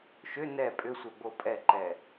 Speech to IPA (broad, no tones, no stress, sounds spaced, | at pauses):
ʃ ʏ n ɛ pʼ ʏ sʷ ɛ b o pʼ ɛ ǃ ɛ